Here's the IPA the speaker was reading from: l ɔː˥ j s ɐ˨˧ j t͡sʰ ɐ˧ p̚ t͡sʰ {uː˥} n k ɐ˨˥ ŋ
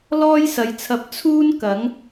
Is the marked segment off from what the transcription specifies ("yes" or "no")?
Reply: no